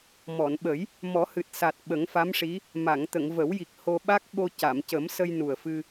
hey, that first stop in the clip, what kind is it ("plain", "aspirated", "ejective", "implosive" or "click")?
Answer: implosive